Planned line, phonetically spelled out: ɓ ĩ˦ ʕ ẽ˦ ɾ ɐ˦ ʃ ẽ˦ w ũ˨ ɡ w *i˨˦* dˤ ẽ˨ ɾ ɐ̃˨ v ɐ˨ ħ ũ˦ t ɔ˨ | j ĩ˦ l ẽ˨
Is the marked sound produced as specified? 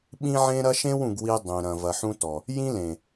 no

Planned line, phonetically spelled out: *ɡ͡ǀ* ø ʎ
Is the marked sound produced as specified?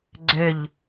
yes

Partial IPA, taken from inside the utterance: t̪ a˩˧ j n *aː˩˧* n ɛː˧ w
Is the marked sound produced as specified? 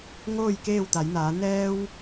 yes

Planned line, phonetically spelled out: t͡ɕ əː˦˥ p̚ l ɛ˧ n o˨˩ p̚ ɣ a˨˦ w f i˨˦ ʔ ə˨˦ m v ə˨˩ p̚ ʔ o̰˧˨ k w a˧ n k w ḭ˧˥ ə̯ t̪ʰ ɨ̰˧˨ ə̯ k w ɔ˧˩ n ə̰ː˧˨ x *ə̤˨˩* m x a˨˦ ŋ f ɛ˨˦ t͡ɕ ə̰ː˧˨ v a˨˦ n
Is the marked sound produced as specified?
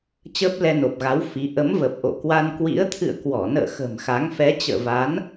yes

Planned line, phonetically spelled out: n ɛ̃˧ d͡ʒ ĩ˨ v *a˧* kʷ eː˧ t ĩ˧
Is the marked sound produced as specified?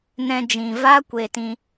no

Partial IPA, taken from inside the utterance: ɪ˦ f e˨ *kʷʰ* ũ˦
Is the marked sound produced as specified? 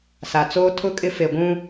no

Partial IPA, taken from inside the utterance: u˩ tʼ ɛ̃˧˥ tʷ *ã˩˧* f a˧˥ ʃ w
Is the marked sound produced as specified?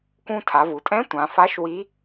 yes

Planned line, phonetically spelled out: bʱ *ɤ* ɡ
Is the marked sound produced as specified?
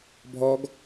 no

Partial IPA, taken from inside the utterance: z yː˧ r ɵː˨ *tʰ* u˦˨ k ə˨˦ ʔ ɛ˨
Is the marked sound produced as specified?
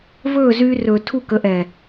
yes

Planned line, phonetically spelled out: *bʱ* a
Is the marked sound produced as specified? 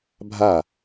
yes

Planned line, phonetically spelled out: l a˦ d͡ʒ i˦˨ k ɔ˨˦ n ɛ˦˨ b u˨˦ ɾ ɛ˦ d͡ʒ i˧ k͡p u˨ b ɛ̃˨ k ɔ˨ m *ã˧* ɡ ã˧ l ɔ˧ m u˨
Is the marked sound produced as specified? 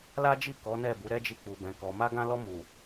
no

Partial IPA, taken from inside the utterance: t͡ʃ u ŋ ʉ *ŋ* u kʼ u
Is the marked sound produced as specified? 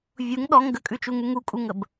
yes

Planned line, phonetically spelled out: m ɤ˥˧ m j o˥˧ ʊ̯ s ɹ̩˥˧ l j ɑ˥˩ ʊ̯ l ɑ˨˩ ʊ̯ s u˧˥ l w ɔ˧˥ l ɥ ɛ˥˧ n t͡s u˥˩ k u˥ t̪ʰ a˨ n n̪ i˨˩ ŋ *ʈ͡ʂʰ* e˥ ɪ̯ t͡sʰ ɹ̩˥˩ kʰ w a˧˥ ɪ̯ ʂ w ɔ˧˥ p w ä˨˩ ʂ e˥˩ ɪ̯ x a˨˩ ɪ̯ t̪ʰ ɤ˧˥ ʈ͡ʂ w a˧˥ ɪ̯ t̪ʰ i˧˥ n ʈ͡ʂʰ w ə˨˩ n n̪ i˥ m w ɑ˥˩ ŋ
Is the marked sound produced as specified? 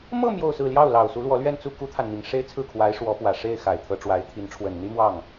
no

